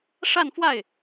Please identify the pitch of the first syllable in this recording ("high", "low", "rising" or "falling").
falling